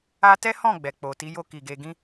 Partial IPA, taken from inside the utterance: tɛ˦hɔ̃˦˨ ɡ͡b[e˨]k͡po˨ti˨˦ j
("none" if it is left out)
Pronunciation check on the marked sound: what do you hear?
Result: ɛ˨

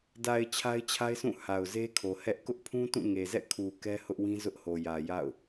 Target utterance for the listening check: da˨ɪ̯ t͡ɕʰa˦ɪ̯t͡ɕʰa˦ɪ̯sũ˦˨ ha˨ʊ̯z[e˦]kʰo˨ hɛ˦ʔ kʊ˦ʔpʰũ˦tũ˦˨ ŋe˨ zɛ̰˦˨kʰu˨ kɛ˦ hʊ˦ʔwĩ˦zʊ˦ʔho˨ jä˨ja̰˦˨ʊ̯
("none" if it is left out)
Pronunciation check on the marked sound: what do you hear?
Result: e˦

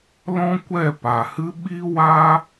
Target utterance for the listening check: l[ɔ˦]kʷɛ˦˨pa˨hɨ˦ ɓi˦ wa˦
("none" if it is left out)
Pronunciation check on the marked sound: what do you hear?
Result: ɔ̃˦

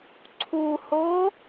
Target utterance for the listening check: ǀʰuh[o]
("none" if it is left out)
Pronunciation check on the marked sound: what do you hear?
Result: o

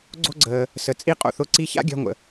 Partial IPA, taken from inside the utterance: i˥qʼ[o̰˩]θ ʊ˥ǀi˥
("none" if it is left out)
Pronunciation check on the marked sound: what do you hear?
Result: o̰˧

